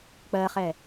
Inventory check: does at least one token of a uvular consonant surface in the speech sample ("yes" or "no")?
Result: yes